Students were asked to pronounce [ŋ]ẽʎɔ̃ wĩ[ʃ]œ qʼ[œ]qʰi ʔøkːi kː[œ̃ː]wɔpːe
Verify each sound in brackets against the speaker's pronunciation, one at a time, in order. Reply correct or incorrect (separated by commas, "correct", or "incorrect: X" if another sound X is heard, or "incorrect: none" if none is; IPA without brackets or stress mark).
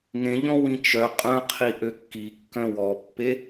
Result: correct, incorrect: t͡ʃ, incorrect: œ̃, incorrect: œ̃